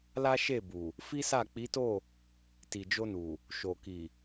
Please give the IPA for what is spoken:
l a˦ ʃ e˦˨ b u˨ | f i˦ s a˦˨ k͡p i˨˦ t o˦˨ | t i˨ d͡ʒ o˧ n u˨ | ʃ o˨ k i˨

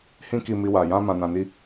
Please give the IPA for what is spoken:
h ĩ˦ k i˧ m i˦ w a˧ j ã˦ m ã˧ n ã˧ n i˦

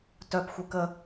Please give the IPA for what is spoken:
t œ p xʷ ɛ k ə

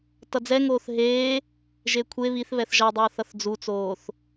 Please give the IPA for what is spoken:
t ʌ d͡z ɛ ŋ oː θ ɦ eː | ʒ e kʷʰ e β i θ β ɛ θ ʒ ʌ dˤ ʌː θ ʌ θ d͡z u t͡s oː θ

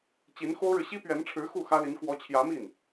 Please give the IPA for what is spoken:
t͡ɕ i˧˥ n x o˥ ʊ̯ ɻ ɻ̩˨ ɕ i˥ p ɥ ɛ˧˥ n ʈ͡ʂʰ ɻ̩˧˥ x u˥˩ x ä˥ l i˧˥ n k w ɔ˧˥ t͡ɕʰ j ä˧˥ m i˥˩ n

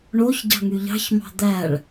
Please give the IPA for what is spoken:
ɳ o ç ɟ ɑ̤ ŋ y ʎ ɑ̤ ç m ɑ̤ d̪ æ ɭ

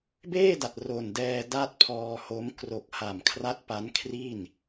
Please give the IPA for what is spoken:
b eː˥˩ d a˨˩ t̚ r o˨˩ n d ɛː˧ d a˥˩ t̚ pʰ ɔː˧ h o˦˥ m k r o˨˩ k̚ h a˨˩ m kʰ r a˦˥ t̚ p a˦˥ n kʰ r i˥˩ n

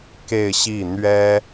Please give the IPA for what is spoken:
k e˥˧ ɪ̯ ɕ i˥˩ n̪ ɥ ɛ˥

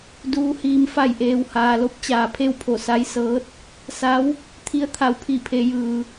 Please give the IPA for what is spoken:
d uː˧˥ h iː˧ m f a˧˩ j ʔ eː˩ w h aː˩ l o˧˥ p̚ t͡ɕ aː˩ pʰ e˥˨ w pʰ o˧˩ s a˧˥ j s ɤː˧˥ t̚ | s a˧˥ w | t̪ʰ i˧˥ ə̯ t̪ʰ a˩ w pʰ i˧˩ pʰ e˩˧ j ɯː˩

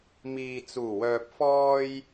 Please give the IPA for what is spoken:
m iː˨ t͡s uː˨˩ w œː˨ p̚ f ɔː˧ j

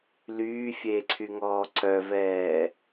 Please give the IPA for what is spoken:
l yː fʲ eː ǀʰ y ŋ ɔː ǀ œ v ɛː

